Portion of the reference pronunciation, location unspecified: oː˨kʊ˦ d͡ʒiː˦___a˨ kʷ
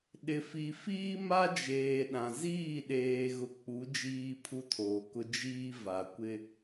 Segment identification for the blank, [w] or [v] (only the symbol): v